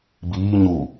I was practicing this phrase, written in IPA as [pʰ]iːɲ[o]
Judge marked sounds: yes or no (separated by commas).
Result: no, no